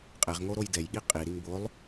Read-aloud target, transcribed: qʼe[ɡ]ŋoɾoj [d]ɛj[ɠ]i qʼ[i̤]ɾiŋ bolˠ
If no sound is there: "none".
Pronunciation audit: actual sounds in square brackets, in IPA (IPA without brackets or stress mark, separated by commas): ʁ, d, ɠ, i